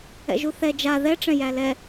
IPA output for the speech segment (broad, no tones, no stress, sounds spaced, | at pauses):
ɛ̰ ʒ u θ ɛ d͡ʒ a ð ɛ ʈ͡ʂ ɛ̃ j æ l ɛ